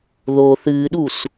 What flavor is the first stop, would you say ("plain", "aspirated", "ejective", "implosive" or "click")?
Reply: implosive